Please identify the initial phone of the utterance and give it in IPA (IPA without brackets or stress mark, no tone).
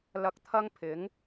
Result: l